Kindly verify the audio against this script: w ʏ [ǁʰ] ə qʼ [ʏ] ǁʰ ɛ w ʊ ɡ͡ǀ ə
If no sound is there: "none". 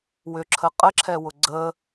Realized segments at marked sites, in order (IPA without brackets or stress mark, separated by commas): ǁʰ, ə